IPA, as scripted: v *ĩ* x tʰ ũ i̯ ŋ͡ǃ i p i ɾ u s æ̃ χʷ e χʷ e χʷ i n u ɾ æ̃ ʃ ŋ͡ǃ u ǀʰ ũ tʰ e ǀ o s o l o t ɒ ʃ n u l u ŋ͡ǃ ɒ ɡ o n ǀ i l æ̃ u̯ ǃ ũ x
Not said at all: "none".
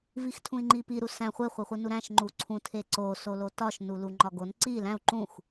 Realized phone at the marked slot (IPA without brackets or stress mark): i